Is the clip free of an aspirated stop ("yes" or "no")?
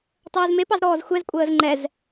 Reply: yes